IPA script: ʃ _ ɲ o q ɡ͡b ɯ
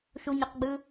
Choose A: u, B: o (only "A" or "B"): A